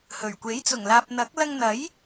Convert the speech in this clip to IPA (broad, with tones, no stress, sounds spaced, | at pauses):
h ɵ˨˩ ɥ kʷ e˨˥ j t͡s ʊ˨˩ ŋ l aː˨ p̚ n̪ ɐ˨˥ k̚ l ɐ˧ ŋ n̪ ɐ˨˥ j